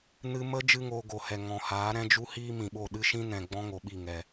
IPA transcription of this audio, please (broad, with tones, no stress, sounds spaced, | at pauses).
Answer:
n ɨ˦ m ə˦ d͡ʒ ɨ˦ ŋ oː˧ ɡ o˨ h ɛ˨ ŋ ɔ̃˨ h aː˨˦ ɾ ɛ̃˦ d͡ʒ u˦ h iː˦ m ĩ˨ ɓ o˦˨ ɗ ɨ˦ ʃ ĩ˦ n ɛ̃˨ ɡ͡b ɔ̃˦ ŋ o˨ ɓ i˦˨ ŋ ɛ˨